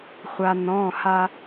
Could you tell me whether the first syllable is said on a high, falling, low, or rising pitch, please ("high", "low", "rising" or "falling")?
low